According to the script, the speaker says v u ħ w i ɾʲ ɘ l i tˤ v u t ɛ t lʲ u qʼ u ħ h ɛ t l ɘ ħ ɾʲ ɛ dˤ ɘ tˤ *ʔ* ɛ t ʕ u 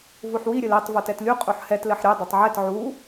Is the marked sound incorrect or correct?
incorrect